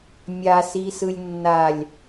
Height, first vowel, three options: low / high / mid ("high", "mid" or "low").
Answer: low